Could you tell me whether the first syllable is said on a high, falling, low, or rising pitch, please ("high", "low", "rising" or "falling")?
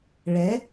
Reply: rising